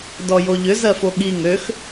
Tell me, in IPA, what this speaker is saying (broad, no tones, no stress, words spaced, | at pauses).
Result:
dɔjoʎʏ zɜfoɠi ŋøx